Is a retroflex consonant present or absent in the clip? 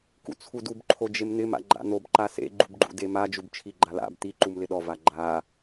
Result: absent